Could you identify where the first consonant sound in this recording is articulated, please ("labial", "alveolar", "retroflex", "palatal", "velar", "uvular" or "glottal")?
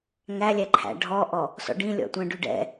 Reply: velar